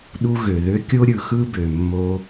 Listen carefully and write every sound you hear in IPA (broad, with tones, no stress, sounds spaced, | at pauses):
ɗ u˧ ɣ ø˩ ð ø˧ kʲ o˥ ɾʲ ɯ˩ x ɯ˥ b ø˩ mː o˧